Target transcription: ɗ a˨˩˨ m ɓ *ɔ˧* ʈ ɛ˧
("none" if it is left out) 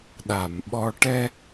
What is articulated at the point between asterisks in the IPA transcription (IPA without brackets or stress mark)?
ɔ˧